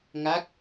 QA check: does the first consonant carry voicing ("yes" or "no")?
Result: yes